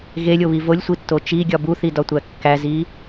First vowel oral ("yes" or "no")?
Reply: yes